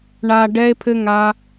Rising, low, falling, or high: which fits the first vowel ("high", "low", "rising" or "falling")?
low